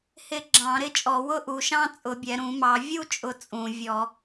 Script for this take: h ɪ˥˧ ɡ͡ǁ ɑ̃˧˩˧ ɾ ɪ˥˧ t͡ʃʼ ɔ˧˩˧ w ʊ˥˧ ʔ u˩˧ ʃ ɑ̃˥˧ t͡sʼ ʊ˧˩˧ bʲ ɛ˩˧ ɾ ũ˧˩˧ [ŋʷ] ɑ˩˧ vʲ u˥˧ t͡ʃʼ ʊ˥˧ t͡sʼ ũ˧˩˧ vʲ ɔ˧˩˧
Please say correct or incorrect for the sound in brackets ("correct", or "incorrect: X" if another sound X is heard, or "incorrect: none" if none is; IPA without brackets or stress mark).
incorrect: m